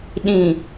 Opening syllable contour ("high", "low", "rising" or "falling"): low